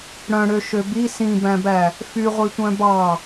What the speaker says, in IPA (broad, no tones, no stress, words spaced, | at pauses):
ɽœ̃ɽøʃø bi sĩbæ̃bæ | fyʁʷitʷœ̃ bɑ